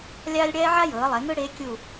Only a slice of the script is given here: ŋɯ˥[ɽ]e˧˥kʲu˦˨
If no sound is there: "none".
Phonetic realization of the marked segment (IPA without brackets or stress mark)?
ɽ